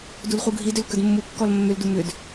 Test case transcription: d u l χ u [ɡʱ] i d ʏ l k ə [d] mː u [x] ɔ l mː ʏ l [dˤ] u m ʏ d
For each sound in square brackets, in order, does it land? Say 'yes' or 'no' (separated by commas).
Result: yes, yes, no, no